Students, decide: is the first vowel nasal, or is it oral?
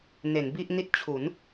oral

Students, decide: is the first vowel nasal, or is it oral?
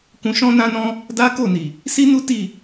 nasal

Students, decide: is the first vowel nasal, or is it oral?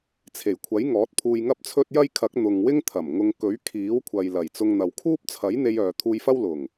oral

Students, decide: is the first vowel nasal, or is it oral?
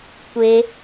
oral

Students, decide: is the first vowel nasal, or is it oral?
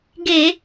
oral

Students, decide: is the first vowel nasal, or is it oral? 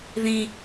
nasal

